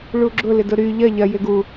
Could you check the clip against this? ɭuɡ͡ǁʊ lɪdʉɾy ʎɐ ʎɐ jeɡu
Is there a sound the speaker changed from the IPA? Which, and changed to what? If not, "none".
ʉ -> ʊ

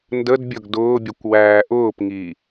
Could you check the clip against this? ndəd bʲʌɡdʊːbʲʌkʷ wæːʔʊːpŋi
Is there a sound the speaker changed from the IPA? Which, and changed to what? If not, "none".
none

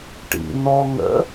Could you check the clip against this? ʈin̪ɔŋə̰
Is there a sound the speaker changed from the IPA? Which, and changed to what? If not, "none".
i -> ḭ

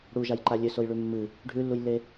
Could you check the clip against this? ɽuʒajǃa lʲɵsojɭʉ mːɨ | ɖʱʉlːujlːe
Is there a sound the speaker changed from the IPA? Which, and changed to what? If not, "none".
none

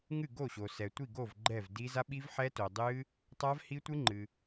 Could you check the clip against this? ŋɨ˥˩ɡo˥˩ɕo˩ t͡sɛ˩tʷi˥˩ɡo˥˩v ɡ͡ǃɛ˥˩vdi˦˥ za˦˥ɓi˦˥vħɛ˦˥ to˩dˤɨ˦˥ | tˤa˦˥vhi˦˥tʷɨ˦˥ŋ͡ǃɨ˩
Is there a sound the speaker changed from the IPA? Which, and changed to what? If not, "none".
t͡s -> s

